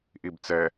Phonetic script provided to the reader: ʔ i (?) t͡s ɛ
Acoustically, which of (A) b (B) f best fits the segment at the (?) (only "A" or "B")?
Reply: A